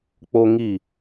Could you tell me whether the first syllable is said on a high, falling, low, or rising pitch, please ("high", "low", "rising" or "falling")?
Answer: high